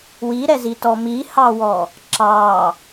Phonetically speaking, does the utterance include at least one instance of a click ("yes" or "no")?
yes